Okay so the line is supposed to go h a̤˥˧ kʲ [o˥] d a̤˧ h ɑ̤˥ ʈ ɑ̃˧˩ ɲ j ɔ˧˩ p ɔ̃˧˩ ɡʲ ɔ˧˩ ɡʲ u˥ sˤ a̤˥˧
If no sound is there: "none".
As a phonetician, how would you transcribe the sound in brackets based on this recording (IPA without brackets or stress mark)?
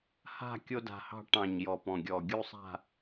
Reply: o˥